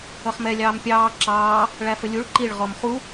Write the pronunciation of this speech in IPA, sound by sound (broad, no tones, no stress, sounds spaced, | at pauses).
ʌ χ m ɛ lʲ ɑː m pʲ ɑː ǁ ɑː | ɭ æ f ə lʲ u ɭ ǃ i ɭ ʁ ɔ m χ u